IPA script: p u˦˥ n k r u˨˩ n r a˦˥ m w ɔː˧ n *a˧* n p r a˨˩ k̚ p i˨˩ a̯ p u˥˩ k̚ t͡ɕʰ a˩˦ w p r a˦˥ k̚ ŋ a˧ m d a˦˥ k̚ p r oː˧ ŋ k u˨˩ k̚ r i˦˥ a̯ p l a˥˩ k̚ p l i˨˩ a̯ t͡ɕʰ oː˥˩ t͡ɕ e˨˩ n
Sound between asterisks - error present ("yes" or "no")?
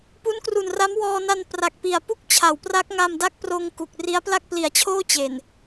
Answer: no